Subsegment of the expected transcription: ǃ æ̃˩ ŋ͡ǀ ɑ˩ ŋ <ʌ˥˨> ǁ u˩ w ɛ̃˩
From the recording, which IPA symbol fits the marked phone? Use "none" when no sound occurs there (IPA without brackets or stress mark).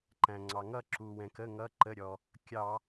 ʌ˥˨